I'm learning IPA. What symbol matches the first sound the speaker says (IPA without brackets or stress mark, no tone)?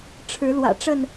ʈ͡ʂʰ